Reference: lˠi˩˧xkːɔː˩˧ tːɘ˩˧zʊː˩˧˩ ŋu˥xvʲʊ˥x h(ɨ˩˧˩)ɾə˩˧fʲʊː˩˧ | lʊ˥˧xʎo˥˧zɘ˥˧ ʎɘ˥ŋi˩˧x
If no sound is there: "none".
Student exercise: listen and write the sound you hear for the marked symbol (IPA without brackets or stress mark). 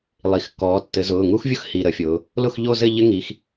i˩˧˩